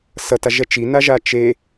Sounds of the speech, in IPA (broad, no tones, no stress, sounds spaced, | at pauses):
s ʌ t a ʒ ɛ t͡ʃ i n a ʒ a t͡ʃ e